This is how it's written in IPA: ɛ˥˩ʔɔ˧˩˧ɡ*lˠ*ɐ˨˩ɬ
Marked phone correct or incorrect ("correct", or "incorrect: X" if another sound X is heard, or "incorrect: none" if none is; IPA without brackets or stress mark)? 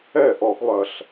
correct